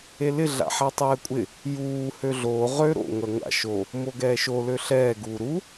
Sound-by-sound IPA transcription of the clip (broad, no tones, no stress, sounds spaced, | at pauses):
e l ɪ ɮ a̰ ħ a tˤ ɛː kʷʼ ɪ | j uː h ø ɮ oː ʁ ø ɾ o̰ ŋʷ ɛ ŋʷ a̰ ʃ o | m o ɡ ɛː ʃ o l ø ɬ ɛː ɡ uː ɾ u